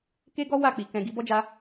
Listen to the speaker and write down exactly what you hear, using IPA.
k e˦ ɡ ɔ˦ w a˦˨ k͡p i˨ k ɛ̃˨ ɡ i˨˦ b ɔ˦ d͡ʒ a˧

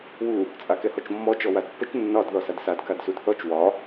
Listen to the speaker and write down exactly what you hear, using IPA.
w u | t͡sʼ a k ɛ h ɔ t͡ʃ mː ɔ t͡ʃ ɔ w a d pː ə t͡ʃ nː ɒ d ð ɔ s a d s a d k a d s u d θ ɔ t͡ʃ w ɒ

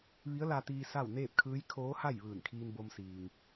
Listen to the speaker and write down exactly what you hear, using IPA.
ʋ i˧˥ ə̯ l a˧ t̪ iː˧ s a˥˨ w n eː˥˨ p̚ kʰ ɯː˧˥ j kʰ oː˧˥ h a˥˨ j ʋ ɯː˧˩ n kʰ iː˧ n b o˧ m s iː˩ ŋ

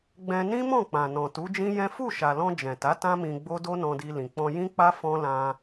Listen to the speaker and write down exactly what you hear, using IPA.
ɡ͡b ɛ̃˧ n ĩ˦ m ɔ̃˦˨ k͡p ã˨ n ɔ̃˨ t u˨˦ d͡ʒ ĩ˦ j ɛ̃˦ f u˦˨ ʃ a˨ l ɔ̃˧ d͡ʒ ɛ̃˨ t a˨˦ t ã˦ m ĩ˧ ɡ͡b o˦ d o˦ n ɔ̃˧ d i˧ l ĩ˨ k͡p ɔ̃˧ j ĩ˦ k͡p a˦ f ɔ̃˦ l ã˧

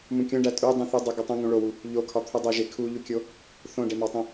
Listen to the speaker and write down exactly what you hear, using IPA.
m ũ kʲ õ ɖ æ tʼ u dˤ ũ θ u dˤ u ɡ o tˤ ũ ŋ ũ ɭ o w u | ʎ o kʰ ɒ t̪ʰ u dˤ e ʒ e kʰ u ʎ u kʲ o | θ õ ɖ e m ɒ tˤ ũ

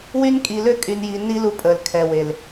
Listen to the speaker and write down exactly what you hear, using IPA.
w y˦ n kʼ i˨ l ø˦ kʼ y˨ n j i˨ nː i˦ l u˦ pʼ əː˨ l kʰ ɛ˨ w e˨ l

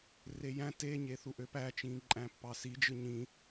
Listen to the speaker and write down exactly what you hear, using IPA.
r e j æ̃ t e ɲ e θ u ʔ ø p æ t͡ʃ ĩ ǃʼ æ̃ pː ɑ s i d͡ʒ ɯ ɲ ĩ

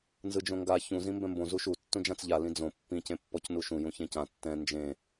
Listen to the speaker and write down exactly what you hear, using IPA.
n z ɯ d͡ʒ õ ŋ ɡ a ç ũ z ĩ m b ɛ̃ m b õ z u ʃ u tː ũ d͡ʒ ã t͡s ʎ a l ĩ d͡z õ pː ĩ c ẽ pː ɔ c n u ʃ ũ j ũ ç ẽ c ã tː ɛ̃ n d͡ʒ ẽ

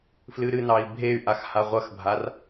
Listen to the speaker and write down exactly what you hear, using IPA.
f l ɨ ɾ ɨ n ɑ i̯ bʱ e y̯ ʔ a x h a ʁʷ ɐ x bʱ a r

